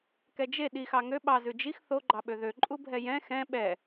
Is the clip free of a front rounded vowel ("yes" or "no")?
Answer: no